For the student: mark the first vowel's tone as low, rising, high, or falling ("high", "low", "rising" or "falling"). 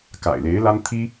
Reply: low